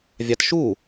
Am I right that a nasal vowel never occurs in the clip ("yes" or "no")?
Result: yes